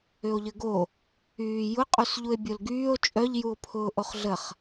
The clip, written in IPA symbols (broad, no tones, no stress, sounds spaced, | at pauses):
ʏ o̯ ʎ ə ɡ o | yː j ʊ qʼ u s ʎ u e̯ bʲ o l ɡ yː o̯ t͡ʃʼ œ ʎ j u o̯ pʰ ʊː ʔ o χ ɮ ə χ